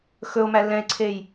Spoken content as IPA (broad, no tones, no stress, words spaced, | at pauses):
xɵo̯mæ lɛ̃e̯ǀʰej